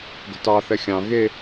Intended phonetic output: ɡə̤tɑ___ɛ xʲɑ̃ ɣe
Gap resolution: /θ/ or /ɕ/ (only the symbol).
θ